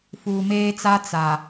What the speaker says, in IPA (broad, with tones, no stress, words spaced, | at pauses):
fuː˨meː˦t͡sa˦ t͡sa˨